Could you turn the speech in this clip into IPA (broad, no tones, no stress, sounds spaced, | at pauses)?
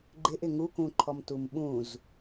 ɡ͡ǃ ɪ ʔ ɪ ŋ u k ũ ǃʰ ɔ m t u m ɓ ũ z